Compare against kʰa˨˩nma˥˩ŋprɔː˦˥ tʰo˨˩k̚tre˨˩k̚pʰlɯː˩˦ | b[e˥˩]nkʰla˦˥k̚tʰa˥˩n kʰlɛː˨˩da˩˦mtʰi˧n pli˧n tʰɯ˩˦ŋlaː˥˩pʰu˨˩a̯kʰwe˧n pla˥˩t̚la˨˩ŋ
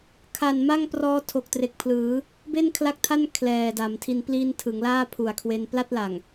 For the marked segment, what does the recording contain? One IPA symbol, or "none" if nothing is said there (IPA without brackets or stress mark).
e˥˩